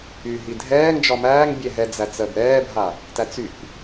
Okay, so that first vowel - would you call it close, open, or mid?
close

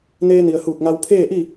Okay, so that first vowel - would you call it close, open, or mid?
mid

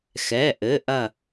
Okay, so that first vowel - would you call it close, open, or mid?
mid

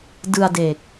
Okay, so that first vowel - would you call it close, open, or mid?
close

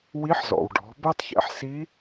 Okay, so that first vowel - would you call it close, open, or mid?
close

